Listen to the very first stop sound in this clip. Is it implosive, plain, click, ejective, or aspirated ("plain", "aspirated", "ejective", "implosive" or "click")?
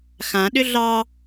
implosive